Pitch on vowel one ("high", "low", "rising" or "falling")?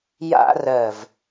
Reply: high